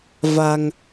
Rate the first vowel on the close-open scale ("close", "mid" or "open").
open